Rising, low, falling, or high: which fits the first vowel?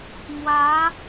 rising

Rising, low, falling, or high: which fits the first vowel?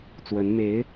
rising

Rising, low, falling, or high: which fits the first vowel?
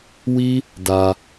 high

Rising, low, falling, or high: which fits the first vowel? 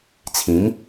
rising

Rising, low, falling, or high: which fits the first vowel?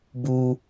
high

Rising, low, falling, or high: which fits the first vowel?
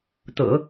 low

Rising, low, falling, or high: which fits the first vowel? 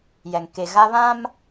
low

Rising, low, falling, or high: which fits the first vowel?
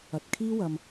low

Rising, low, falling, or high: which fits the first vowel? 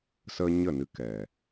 high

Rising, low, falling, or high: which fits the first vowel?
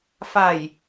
low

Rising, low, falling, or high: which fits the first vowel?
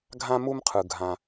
high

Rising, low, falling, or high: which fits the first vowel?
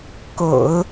low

